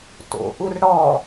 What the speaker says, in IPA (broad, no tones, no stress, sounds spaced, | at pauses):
t o̰ ʔ u r ɽ ɔ